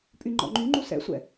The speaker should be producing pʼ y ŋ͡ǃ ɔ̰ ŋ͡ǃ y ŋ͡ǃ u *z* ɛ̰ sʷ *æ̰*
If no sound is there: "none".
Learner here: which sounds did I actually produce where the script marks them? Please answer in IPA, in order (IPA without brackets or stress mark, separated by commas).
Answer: s, ɛ̰